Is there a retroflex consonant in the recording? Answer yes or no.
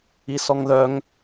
no